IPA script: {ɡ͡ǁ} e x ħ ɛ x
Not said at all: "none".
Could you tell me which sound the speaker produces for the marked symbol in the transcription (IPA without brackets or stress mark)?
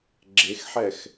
ɡ͡ǁ